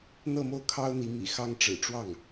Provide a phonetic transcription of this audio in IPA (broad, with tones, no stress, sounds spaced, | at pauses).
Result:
n̪ ɤ˥˧ m o˥˩ ʊ̯ kʰ ɑ˥ ʊ̯ n̪ i˧˥ m ḭ˨˩ x ɑ˥ ŋ ʈ͡ʂ ɻ̩˨˩ ʈ͡ʂ w ɑ˥˩ ŋ